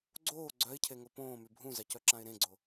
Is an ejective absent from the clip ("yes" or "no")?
yes